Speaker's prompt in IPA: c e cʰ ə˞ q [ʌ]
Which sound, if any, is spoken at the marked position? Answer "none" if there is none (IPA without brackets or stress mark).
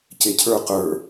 ə˞